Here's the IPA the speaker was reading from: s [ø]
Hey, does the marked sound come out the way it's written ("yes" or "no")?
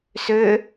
yes